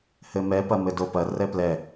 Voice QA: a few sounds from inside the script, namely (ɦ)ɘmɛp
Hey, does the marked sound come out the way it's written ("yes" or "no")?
no